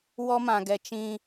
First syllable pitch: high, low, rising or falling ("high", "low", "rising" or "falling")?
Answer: high